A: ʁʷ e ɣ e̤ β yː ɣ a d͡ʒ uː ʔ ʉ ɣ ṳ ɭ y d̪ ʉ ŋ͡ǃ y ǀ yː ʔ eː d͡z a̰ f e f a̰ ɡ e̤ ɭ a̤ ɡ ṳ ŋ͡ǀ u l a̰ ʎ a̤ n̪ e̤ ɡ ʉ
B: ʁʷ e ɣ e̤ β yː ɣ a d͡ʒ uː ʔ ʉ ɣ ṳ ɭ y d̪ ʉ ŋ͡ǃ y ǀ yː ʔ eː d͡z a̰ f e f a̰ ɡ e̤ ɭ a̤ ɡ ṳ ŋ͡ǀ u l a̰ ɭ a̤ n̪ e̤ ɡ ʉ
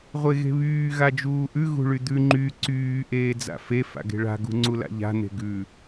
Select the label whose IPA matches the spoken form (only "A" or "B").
A